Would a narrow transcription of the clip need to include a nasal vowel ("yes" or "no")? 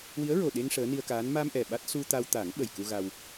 no